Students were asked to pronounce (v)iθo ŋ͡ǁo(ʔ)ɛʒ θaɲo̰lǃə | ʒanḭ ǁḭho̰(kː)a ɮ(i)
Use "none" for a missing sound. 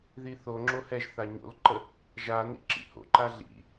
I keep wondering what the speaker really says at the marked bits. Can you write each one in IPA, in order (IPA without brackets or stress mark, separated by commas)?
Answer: ð, h, ǃ, ḭ